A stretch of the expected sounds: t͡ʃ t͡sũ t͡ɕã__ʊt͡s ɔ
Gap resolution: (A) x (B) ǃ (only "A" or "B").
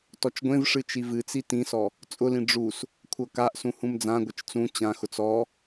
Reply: A